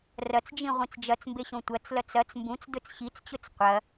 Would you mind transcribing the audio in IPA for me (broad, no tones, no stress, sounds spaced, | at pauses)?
r ɐ t͡s d͡ʒ ĩ ʁʷ ĩ t͡s d͡ʒ ɐ t͡s m b e ɕ õ tʷ ɐ t͡s l ɐ t͡s ɐ t͡s m b ũ t͡s d ɵ t͡s ɕ i t͡s t͡ɕ ɵ t͡s qʷ ɐ